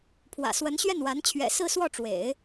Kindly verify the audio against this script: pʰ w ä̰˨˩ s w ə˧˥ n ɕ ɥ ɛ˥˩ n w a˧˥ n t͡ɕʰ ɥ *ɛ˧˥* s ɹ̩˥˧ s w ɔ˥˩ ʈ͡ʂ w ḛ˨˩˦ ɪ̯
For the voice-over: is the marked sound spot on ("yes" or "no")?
no